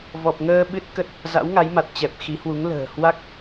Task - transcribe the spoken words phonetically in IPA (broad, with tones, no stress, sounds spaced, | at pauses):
v ɔ˨˩ p̚ ŋ əː˧ ɓ ɨ˦˥ t̚ k ə˦˥ t̚ | z a̰˧˥ w ŋ a˨˦ j m a˨˩ t̚ t͡ɕ ɛ˨˩ p̚ x i˨˦ h w u˨˦ ŋ l ə̤ː˨˩ h w a˦˥ k̚